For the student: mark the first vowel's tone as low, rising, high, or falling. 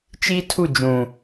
high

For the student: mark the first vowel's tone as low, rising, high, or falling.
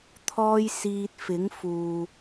high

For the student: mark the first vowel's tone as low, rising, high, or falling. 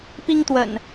high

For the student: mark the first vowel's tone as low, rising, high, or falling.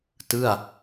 falling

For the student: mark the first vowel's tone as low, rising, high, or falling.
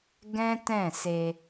high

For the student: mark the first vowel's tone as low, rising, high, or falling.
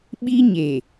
high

